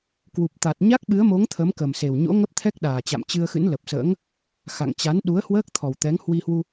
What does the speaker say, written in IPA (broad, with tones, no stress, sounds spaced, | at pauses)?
k w u˨˩ p̚ t̪ a˨˩ t̚ ɲ a˦˥ k̚ ɓ ɨ˨˦ ə̯ m o˨˦ ŋ t̪ʰ ə˨˦ m k ə˨˩ m s e˨˩ w ɲ o̰˧˥ ŋ ə˦˥ p̚ t̪ʰ ɛ˦˥ k̚ ɗ aː˨˩ t͡ɕ a̰˧˨ m t͡ɕ ɨ˧ ə̯ x ɨ̰˧˥ n l ə˨˩ p̚ s ə̰ː˧˥ ŋ | x a̰˧˨ ŋ t͡ɕ a˨˦ n ɗ u˨˦ ə̯ h w əː˦˥ k̚ t̪ʰ ɔ˨˩ w t̪ ɛ˨˦ ŋ h w i˧ h w u˧